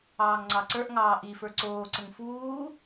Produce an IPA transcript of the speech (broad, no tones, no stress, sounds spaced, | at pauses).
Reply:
ɑː ŋ ŋ͡ǀ ɑ ǀ ə˞ ʔ ŋ ɑː ʔ i f ə˞ ǀ oː ǀ ə ŋ f uː